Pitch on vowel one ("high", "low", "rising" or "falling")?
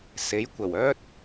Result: rising